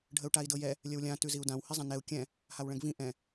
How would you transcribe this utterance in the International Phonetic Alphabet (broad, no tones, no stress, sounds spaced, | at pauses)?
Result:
ɖʱ ə u̯ ʈ a i̯ d ɤ j ɛ | lʲ ə w lʲ ã t ʉ z i u̯ d ã w h i zˤ ã n ɛ u̯ kʲ ɛ̃ | h a w ɭ ɛ̃ ɡ v ĩ ʔ ɛ̃